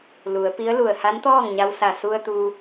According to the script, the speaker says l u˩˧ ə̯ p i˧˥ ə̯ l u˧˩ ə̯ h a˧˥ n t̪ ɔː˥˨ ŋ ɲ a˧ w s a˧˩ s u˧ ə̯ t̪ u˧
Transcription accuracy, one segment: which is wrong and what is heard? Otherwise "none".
none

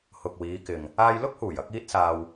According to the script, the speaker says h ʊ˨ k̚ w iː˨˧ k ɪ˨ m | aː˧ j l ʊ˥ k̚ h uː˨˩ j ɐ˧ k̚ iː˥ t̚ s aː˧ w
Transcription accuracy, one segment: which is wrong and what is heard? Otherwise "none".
m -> ŋ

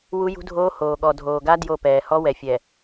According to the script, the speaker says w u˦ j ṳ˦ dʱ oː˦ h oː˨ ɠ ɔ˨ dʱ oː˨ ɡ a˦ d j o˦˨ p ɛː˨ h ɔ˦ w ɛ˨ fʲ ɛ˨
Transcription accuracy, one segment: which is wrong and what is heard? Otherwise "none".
none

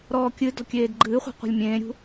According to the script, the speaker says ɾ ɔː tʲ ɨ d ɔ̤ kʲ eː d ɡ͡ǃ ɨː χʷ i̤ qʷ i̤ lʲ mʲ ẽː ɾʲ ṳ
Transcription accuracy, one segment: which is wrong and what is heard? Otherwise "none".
tʲ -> kʲ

